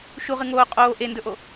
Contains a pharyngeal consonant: no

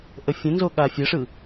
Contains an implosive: yes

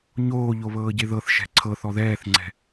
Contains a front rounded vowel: no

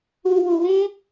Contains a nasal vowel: yes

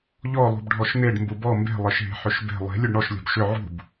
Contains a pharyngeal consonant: yes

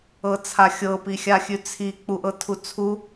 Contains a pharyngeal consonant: no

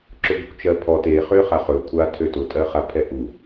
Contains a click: yes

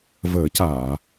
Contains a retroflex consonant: no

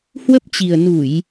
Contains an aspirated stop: no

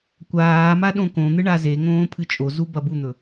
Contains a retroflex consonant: yes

